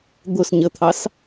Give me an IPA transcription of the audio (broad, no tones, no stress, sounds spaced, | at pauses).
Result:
d̪ ʊ s ɲ ə t̪ʰ ɑ s